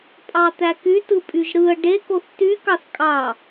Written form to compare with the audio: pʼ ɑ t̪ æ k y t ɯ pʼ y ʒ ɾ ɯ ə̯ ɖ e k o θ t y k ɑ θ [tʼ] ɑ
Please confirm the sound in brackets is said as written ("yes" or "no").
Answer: no